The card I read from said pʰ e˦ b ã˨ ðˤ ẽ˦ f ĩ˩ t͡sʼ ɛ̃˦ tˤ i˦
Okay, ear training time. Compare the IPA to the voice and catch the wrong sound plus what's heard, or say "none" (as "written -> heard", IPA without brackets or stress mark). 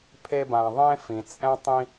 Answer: i˦ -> ĩ˦